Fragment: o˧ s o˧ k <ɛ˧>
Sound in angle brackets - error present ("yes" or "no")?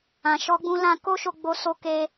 yes